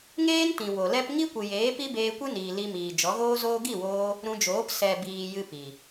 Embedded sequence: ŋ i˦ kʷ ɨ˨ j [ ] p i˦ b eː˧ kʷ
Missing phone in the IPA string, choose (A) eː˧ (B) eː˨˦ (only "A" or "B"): B